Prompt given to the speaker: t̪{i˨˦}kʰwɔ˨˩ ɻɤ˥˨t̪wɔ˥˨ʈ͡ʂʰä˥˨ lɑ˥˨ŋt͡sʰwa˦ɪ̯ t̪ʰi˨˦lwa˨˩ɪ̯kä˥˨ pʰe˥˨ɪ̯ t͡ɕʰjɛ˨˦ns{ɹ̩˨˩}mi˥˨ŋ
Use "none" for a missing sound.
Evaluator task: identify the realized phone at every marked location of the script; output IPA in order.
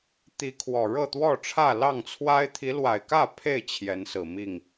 i˨˦, ɹ̩˨˩

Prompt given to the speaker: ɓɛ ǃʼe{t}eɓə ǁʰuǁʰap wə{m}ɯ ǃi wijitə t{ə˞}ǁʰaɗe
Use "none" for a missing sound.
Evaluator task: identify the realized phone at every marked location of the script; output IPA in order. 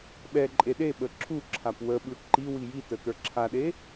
ɗ, ɓ, ə˞

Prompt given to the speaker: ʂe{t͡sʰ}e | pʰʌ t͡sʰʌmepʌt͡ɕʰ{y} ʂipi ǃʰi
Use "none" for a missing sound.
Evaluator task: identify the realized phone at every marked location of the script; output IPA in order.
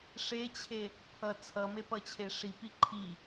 t͡ɕʰ, e

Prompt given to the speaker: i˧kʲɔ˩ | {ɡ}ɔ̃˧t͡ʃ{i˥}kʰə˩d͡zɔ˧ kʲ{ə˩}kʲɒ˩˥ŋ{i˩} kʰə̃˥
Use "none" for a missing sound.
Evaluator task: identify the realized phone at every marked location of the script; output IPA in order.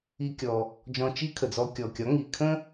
d͡ʒ, i˥, ɔ˩, i˩

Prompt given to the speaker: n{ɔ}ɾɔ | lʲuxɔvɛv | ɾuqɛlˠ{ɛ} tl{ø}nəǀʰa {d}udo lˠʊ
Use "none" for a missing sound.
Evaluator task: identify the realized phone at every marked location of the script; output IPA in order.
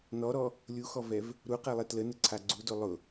ɔ, ɛ, ə, ɡ͡ǀ

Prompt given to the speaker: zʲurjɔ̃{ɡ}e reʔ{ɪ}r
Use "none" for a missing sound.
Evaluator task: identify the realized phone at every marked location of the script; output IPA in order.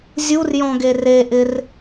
ɡ, ɪ

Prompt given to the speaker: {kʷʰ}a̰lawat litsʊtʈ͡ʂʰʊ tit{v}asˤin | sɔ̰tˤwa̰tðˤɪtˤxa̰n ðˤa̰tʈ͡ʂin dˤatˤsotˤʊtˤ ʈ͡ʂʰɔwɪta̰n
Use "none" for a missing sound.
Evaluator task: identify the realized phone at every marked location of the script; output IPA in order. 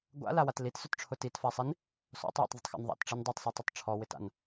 ɡʷ, f

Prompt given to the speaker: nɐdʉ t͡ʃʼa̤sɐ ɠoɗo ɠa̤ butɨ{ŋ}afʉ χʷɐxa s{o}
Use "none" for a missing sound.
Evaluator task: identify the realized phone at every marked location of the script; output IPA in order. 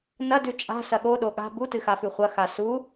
x, u

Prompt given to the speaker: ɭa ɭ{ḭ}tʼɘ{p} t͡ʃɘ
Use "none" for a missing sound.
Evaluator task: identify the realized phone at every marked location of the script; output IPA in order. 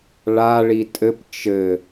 i, p

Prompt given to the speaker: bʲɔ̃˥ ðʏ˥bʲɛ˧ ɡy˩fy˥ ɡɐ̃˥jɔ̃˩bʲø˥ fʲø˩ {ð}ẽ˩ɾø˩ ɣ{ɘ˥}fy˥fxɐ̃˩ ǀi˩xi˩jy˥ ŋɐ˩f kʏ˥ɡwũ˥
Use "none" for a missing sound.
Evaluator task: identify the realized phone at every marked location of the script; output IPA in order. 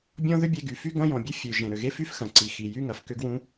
ʒ, e˥

